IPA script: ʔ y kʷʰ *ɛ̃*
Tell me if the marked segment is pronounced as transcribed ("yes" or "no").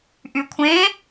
no